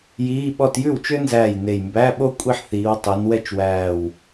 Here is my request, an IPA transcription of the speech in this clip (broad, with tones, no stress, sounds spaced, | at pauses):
j iː˧˥˧ ɓ ɔ˥˧ t j ʉ˥˩ w t͡ʃ ø˥ n z æː˥˩ j n e˧˩ j m b æ˧˥˧ ɓ o˥ kʷʼ i˥˩ ħ θ iː˨˦ w tˤ ø˨˦ n w ɛ˥˩ t͡ʃ w æː˧˩ w